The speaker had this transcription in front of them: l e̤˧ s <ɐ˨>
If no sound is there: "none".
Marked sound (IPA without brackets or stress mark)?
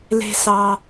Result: ɑ˨